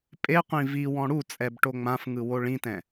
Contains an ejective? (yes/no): yes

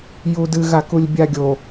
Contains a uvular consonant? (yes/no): no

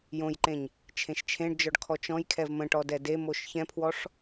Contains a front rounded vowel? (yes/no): no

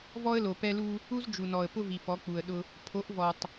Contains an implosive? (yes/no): yes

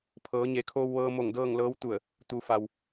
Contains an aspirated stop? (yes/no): yes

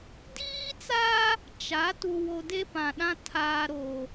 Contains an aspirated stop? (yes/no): yes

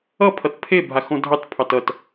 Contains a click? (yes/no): no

